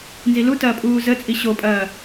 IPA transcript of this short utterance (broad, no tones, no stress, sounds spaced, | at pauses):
n z i l u t ɐː pʼ uː z ə t͡sʼ i ɕ o pʼ ɐː